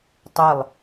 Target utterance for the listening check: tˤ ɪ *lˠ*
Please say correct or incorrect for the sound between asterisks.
correct